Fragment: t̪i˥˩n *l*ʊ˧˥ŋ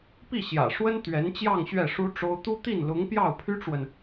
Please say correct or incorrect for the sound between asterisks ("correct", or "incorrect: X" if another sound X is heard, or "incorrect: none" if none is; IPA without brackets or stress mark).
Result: correct